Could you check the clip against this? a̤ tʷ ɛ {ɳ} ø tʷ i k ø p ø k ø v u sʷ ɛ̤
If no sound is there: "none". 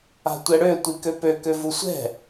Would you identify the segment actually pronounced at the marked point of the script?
ɽ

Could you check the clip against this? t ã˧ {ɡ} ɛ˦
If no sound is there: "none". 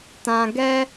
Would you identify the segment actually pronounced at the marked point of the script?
ɡ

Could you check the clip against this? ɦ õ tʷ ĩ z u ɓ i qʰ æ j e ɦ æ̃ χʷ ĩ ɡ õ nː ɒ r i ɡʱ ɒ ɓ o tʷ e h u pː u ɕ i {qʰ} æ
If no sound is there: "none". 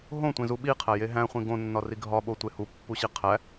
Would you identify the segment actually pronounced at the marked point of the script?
qʰ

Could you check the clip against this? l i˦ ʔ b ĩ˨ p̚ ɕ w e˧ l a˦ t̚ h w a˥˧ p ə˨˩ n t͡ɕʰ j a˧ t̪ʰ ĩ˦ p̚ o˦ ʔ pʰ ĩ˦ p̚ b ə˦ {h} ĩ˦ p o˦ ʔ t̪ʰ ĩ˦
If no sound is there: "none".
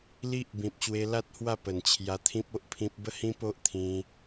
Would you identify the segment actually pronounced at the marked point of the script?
h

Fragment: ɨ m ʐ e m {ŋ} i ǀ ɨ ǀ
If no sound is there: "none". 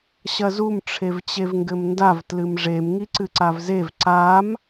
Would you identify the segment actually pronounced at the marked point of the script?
ŋ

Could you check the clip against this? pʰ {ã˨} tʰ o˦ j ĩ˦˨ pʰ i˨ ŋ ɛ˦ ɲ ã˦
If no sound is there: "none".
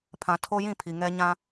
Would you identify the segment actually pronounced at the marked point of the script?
ã˨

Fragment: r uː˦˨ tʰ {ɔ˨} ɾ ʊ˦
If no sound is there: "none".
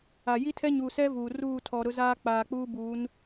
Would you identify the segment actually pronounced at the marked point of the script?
ɔ˨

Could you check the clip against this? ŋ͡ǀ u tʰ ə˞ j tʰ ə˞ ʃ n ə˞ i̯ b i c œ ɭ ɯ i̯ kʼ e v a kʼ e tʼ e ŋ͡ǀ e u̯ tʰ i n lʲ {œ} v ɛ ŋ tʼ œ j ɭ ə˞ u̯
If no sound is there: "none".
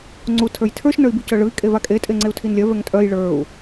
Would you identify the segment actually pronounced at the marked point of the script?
œ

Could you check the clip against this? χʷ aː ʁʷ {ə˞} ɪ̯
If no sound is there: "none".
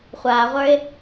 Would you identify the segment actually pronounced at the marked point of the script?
ə˞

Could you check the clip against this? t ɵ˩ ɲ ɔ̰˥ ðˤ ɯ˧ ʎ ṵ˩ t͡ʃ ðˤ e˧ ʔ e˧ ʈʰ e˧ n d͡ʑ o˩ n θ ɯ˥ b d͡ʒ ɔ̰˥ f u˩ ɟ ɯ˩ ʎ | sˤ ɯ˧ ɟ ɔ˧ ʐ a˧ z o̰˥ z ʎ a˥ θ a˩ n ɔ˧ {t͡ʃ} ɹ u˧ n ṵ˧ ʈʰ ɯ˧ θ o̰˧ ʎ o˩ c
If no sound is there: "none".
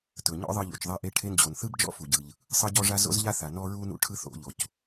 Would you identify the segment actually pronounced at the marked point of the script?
none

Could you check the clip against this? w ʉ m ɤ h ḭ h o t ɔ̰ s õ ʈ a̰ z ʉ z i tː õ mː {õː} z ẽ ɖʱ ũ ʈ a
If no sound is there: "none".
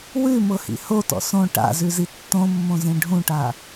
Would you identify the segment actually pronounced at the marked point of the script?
õ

